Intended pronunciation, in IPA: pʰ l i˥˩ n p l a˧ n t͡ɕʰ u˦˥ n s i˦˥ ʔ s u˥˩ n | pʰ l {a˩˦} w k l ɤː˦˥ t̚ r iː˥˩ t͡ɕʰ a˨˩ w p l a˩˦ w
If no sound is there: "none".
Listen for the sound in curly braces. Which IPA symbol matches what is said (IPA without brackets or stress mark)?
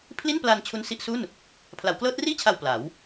a˩˦